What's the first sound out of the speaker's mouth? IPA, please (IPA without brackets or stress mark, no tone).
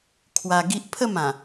kʰ